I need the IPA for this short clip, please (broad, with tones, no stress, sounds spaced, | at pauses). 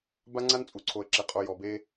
b a˦ ŋ͡ǀ a˦ n t͡sʼ u˨ ǀʰ o˨ ə̯ ǁ e˨ qʼ o˨ j ɔ˨ b e˦